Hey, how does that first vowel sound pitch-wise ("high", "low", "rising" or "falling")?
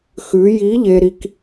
rising